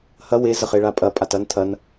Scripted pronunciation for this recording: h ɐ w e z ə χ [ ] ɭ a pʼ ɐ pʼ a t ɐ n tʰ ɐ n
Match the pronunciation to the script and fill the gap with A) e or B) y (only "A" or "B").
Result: A